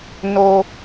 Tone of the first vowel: low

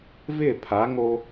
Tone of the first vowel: falling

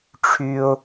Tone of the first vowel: high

